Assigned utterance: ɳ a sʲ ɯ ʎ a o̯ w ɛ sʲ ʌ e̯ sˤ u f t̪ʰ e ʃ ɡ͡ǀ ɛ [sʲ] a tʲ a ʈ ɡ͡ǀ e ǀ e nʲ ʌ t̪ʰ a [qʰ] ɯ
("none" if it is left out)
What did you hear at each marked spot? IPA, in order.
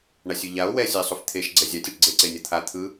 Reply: zʲ, t̪ʰ

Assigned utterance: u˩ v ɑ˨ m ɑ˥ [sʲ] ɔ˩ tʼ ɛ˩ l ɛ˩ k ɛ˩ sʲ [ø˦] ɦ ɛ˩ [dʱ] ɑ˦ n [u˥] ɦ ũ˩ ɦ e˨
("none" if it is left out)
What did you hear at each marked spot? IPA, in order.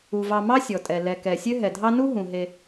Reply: sʲ, ø˦, dʱ, u˥

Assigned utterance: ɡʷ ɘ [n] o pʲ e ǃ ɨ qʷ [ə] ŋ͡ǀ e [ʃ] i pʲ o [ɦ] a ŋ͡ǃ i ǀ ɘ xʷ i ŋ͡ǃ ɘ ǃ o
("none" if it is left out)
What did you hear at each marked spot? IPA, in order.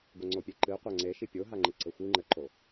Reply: ŋ͡ǀ, a, ʃ, ɦ

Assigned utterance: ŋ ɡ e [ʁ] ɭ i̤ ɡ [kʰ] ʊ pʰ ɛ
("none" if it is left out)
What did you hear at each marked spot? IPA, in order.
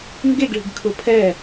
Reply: ɡ, kʰ

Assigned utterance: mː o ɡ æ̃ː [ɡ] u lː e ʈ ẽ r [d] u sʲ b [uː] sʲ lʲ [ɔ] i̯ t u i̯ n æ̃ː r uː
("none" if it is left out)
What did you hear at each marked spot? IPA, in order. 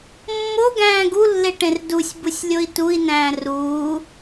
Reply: ɡ, d, u, o

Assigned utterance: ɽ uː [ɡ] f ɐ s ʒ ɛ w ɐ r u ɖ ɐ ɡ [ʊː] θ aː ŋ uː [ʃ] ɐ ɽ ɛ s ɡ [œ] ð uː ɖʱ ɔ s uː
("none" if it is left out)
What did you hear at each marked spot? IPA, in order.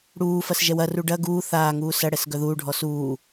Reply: none, uː, s, œ

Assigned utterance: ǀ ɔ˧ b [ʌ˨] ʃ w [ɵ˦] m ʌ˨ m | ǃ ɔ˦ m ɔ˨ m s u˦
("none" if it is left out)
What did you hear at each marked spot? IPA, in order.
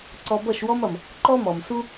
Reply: ʌ˦˨, ɔ˦

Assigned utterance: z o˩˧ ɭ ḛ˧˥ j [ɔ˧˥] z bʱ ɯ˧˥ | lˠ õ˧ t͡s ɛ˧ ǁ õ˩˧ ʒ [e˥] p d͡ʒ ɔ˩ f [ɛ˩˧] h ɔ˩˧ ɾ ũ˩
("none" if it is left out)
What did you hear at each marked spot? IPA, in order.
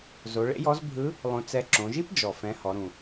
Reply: ɔ˧˥, i˥, ɛ̃˩˧

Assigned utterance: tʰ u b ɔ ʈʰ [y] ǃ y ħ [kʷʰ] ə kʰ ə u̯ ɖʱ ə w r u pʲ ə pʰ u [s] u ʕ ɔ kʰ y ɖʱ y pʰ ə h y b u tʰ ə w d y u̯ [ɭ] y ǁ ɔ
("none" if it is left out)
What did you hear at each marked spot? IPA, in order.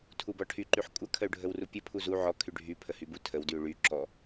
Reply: y, kʷʼ, z, ɭ

